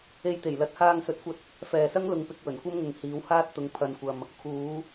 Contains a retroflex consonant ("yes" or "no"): no